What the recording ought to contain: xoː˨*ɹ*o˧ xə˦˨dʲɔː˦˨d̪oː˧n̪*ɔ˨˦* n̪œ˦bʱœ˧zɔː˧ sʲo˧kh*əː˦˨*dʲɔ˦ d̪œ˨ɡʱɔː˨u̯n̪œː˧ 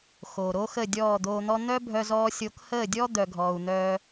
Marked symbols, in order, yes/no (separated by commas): no, no, yes